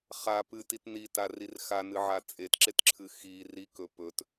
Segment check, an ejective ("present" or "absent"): present